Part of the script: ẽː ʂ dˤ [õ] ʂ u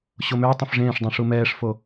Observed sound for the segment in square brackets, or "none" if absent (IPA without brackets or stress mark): ũ